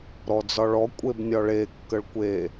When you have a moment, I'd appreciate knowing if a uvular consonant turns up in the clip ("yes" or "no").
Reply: no